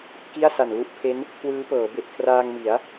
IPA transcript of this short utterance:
k i˥˩ a̯ s a˨˩ n l u˦˥ ʔ pʰ e˦˥ n | kʰ w ɯː˦˥ p ɤː˩˦ b e˨˩ ʔ kʰ r aː˧ ŋ m i˩˦ a̯

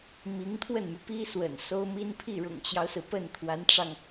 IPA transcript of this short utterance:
m i˧˥ ŋ t̪ʰ w ə˥˩ n m y˩ p i˥ s w ə̰˨˩ n s o˥ ʊ̯ m i˥ n pʰ i˥˩ ɻ ʊ̰˨˩ ŋ t͡ɕ j ɑ˦ ʊ̯ s ɹ̩˩ p ə˥˩ n t̪ʰ w a˧˥ n ʈ͡ʂ ɑ˧ ŋ

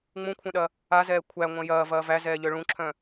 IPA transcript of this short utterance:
ŋ͡m ũ kʷʰ œ̃ ɗ ɐ | a z ɛː kʷʰ æ ŋʷ ɐ̃ j ɐː v ɐː v æ z ɛː ʎ œ ɭ ũ ǁʰ œ̃

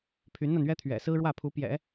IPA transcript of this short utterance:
pʰ y˧˥ n n̪ a˧ n ɥ ɛ˥ t̪ʰ ɥ ɛ̰˨˩ s ɹ̩˥ ɻ w ä˥˩ pʰ u˧˥ p j ɛ̰˨˩˦

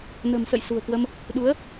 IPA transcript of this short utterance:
n ə̤˨˩ m s ə̰˧˨ j s ṳ˨˩ ə̯ k w ə˧ m | ɗ u˨˦ ə̯

